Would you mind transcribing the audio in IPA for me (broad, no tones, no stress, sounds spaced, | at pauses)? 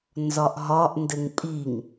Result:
n z ɒ ʔ ɦ ɒ ʔ n d ɘ ŋ pʼ i ŋ